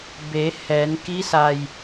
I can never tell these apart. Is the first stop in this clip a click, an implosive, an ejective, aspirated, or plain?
plain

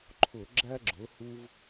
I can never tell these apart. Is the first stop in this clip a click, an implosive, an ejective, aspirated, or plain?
click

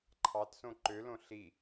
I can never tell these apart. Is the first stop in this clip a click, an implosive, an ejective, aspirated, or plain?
click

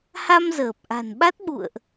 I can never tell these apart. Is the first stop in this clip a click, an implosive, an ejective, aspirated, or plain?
plain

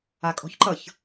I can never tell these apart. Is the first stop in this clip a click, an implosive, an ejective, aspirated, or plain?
ejective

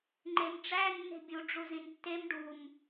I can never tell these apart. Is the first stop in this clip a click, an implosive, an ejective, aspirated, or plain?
click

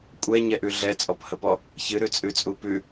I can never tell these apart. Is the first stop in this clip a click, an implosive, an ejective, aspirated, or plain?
ejective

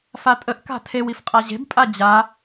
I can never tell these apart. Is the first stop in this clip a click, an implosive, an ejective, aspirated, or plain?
ejective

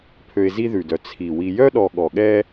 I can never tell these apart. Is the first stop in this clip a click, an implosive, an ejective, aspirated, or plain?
aspirated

